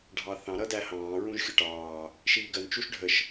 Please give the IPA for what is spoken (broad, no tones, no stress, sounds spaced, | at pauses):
ɖʱ ɑ θ ɑ̃ ɾ ʌ d æ h ɑ̃ː ɹ ũ ʒ xʲ ʊ ʈ ɑː | ʃ iː ɡ ɜ n t͡ʃ u ʃ ɖʱ ə ʃ